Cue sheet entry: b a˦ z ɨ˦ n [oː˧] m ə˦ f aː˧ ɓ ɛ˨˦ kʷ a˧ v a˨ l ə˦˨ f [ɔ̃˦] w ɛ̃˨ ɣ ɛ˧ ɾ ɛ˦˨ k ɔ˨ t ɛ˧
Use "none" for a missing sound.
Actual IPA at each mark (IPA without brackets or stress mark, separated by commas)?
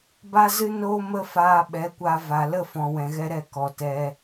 oː˦, ɔ̃˨